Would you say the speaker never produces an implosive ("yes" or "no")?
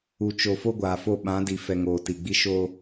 no